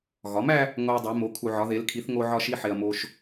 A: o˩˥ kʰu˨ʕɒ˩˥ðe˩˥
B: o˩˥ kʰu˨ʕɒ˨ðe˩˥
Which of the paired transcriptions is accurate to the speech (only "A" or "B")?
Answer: A